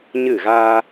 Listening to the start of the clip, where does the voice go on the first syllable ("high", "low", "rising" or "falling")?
falling